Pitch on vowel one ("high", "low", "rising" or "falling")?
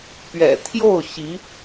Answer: low